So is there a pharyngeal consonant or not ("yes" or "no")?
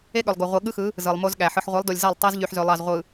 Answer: yes